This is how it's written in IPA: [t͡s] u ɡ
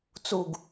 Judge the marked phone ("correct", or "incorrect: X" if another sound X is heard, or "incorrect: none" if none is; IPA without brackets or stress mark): correct